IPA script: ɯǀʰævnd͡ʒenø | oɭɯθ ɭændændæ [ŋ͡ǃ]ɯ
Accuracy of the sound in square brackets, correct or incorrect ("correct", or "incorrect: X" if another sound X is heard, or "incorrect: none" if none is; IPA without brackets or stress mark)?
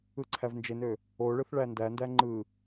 correct